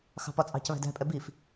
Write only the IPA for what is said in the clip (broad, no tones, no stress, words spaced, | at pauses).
xɑ̤pɒt͡sʼɑ̤c βæ̤dæ̤pʼɛ bif